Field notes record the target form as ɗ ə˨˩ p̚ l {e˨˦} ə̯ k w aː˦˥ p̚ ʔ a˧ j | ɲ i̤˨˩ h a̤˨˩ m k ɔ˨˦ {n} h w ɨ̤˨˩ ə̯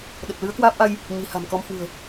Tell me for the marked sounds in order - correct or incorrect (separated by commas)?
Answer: incorrect, incorrect